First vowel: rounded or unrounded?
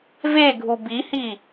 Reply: unrounded